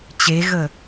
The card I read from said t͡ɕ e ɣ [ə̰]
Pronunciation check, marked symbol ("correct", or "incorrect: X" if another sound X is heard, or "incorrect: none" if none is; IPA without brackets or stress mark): incorrect: ə